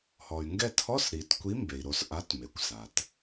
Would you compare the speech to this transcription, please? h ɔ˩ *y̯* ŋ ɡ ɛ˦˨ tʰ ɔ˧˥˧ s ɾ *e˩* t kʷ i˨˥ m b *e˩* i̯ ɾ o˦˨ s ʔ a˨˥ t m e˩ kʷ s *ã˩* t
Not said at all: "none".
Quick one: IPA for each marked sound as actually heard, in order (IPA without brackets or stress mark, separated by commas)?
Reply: y̯, i˩, e˩, a˩